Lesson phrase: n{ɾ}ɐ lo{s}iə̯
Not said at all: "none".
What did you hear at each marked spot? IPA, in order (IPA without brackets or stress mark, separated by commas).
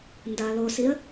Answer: d, s